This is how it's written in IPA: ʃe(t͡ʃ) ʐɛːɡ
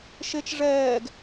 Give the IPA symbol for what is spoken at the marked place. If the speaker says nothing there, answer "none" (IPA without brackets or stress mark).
t͡ʃ